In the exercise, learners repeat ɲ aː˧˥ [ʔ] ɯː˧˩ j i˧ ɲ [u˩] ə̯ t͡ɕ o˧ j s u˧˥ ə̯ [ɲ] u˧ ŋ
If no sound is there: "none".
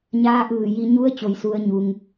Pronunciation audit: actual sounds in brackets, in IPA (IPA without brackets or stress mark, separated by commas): ʔ, u˧˥, ɲ